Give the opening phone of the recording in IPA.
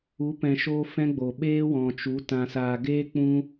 u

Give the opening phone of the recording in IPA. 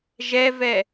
ʒ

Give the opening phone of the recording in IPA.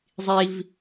zˤ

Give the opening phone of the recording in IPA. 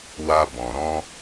w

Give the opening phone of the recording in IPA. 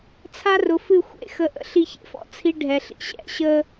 t͡sʰ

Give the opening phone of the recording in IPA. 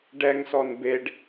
ɖ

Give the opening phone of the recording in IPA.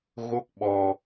ɣ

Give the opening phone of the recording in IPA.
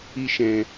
i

